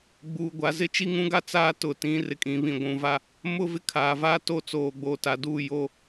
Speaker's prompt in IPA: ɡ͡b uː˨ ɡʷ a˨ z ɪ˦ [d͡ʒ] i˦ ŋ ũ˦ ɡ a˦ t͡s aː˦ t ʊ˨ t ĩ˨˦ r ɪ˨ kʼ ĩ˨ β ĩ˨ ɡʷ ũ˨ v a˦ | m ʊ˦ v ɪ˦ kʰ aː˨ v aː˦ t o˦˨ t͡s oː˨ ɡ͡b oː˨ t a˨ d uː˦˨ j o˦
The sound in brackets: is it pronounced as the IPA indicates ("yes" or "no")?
no